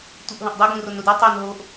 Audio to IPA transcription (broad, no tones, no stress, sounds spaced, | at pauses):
tʷ ɨ ʔ ɦ õ ʔ dˤ u ɡ ũ r o n ɾ u d u tˤ o n ɦ o ʔ